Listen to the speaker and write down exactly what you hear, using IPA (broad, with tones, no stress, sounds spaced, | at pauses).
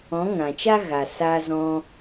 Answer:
ɔ̃˨˦ ŋ ã˨ t͡ʃ a˦ ɣ a˨ s aː˧ z ɔ̃˧